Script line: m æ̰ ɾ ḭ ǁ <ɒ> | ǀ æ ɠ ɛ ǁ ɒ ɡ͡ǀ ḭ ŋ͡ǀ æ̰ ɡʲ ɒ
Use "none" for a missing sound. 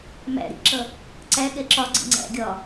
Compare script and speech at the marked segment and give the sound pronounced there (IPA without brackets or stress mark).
ʌ